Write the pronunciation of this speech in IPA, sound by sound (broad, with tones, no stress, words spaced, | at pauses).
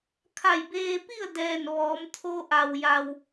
kʰa˧˩jbeː˧pi˥˨ə̯ dɛː˧˩n ʋɔː˩˧m t̪ʰo˧ʔa˩wja˩w